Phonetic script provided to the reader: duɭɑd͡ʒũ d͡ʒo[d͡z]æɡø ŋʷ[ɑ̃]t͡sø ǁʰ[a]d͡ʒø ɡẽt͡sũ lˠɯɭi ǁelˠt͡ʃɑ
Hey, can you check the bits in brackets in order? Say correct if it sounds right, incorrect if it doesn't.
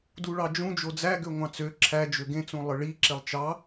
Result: correct, correct, incorrect

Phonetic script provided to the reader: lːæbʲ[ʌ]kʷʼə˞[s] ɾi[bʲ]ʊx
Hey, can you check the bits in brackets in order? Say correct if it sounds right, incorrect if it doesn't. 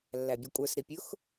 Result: correct, correct, incorrect

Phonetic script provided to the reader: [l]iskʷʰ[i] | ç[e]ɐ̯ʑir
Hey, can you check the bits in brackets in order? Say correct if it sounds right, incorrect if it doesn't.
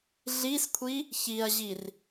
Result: incorrect, correct, incorrect

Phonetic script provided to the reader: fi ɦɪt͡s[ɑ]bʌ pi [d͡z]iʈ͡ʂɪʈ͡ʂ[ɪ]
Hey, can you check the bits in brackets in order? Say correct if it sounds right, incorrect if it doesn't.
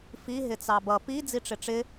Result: correct, correct, correct

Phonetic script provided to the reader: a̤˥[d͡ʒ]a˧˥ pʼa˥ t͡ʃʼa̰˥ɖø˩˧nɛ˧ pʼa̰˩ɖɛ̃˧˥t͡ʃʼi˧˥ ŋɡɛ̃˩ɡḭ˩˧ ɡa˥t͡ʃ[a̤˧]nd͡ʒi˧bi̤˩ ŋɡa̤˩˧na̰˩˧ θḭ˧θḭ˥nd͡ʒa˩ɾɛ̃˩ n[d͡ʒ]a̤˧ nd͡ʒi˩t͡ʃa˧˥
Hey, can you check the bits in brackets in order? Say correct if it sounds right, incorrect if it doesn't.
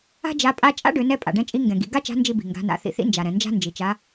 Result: correct, incorrect, correct

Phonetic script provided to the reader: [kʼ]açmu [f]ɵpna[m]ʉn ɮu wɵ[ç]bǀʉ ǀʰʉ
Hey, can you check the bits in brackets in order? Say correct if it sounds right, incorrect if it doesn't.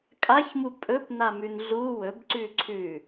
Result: correct, incorrect, correct, incorrect

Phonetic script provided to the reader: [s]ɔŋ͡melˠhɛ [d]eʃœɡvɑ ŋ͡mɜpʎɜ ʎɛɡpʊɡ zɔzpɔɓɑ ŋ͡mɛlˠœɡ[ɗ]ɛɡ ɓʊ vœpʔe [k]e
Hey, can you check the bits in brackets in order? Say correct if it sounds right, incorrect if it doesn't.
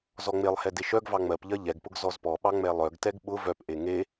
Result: incorrect, correct, incorrect, incorrect

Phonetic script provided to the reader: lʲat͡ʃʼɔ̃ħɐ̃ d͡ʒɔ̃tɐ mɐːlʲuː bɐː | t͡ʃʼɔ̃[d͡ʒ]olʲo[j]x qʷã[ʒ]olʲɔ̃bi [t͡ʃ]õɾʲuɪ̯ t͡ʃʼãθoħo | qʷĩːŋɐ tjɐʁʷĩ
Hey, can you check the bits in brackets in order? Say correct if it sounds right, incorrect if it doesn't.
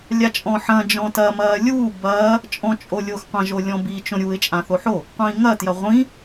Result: incorrect, incorrect, correct, correct

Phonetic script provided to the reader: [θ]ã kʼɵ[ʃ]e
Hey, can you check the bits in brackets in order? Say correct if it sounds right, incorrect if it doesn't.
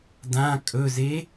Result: incorrect, incorrect

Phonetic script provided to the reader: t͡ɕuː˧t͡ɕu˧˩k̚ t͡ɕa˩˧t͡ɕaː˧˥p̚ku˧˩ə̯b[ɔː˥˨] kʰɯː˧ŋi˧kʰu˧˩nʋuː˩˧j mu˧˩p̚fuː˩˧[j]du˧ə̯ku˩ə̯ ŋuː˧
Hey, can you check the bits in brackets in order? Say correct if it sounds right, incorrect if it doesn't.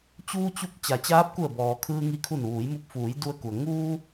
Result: incorrect, correct

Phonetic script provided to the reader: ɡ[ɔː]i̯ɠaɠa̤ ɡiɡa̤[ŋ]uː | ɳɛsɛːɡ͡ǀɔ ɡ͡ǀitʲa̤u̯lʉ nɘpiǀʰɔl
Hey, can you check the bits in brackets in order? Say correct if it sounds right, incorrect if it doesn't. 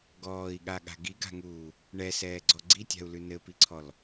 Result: correct, correct

